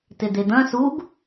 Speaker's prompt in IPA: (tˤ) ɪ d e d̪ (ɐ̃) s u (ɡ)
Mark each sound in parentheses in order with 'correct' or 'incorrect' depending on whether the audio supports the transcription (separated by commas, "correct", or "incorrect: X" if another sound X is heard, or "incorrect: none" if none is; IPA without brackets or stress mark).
incorrect: t, correct, correct